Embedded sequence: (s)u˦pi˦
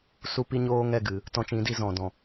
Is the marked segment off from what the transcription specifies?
no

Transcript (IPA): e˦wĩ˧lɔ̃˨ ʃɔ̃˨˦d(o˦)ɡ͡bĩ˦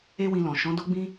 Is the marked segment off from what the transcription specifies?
no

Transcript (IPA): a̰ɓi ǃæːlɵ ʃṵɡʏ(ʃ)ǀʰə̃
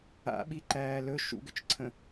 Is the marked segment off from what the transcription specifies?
yes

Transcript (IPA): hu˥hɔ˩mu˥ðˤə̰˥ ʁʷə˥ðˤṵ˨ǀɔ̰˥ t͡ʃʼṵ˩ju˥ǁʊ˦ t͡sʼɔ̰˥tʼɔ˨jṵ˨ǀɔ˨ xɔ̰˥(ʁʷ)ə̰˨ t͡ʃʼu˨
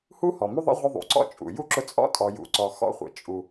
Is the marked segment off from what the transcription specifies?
yes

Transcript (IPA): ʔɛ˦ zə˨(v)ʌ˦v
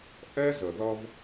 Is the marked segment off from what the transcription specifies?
yes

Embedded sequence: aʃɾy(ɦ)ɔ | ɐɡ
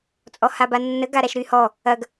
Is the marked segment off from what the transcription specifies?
yes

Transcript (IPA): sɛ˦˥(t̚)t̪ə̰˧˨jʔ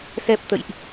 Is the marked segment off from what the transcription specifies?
yes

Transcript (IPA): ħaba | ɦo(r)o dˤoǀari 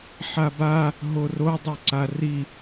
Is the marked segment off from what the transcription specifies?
no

